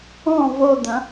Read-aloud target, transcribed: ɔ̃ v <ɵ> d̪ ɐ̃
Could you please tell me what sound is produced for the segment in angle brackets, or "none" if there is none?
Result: o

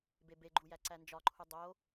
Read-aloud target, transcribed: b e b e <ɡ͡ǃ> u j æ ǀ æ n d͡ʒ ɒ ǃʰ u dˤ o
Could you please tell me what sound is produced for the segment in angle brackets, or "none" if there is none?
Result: ɡ͡ǃ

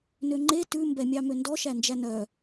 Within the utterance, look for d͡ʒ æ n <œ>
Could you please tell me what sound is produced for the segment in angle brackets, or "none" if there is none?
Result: œ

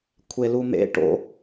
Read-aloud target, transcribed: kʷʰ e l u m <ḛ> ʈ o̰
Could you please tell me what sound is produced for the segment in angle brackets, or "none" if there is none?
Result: ḛ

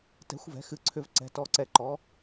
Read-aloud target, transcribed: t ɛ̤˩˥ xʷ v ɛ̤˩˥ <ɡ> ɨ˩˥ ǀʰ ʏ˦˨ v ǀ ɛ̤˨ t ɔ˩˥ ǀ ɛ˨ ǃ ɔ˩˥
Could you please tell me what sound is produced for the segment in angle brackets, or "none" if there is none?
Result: x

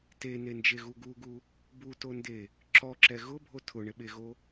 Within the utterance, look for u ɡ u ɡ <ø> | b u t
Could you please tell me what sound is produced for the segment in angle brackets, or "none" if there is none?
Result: u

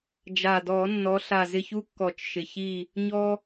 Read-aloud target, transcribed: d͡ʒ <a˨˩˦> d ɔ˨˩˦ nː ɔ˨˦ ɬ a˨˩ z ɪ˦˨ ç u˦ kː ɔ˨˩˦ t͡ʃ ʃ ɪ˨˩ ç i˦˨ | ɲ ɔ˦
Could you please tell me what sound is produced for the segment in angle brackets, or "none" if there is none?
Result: a˨˩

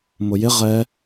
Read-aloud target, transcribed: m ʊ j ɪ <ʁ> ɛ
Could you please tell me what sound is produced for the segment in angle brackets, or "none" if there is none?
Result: ʁ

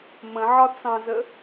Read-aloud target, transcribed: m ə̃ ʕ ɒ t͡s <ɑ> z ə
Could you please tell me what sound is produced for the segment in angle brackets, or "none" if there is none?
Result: ɑ̃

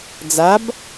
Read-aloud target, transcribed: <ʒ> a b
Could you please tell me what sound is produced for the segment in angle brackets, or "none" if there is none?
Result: d͡z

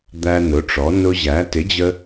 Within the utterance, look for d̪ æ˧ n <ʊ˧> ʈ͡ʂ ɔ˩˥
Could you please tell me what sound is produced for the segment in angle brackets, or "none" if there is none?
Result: ʊ˩˥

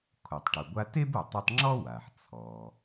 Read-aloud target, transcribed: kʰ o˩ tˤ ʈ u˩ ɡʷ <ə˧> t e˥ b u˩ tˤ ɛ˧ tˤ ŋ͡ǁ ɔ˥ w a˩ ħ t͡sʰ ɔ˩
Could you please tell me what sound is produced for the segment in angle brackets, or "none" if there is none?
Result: a˧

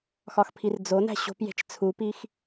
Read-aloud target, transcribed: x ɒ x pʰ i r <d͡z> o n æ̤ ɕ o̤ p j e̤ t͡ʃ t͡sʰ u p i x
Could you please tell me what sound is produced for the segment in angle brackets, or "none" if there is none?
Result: d͡z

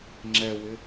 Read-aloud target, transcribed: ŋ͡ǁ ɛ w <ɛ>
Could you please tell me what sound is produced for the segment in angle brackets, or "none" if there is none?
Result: ɪ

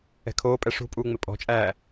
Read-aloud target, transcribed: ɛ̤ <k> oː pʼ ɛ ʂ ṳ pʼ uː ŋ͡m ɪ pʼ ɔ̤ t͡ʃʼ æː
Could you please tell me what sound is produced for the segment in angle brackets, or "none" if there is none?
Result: kʰ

